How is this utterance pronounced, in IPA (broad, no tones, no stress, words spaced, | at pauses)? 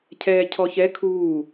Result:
cʰɛːcʰɔçɛ kʰuː